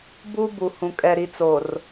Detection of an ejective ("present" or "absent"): present